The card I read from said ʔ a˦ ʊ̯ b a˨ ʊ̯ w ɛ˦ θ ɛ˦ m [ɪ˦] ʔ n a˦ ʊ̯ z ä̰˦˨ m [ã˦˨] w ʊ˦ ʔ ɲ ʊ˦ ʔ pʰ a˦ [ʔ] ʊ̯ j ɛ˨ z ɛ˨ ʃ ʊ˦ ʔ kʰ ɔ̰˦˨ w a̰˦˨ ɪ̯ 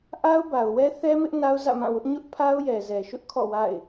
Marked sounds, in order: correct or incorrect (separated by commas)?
correct, correct, incorrect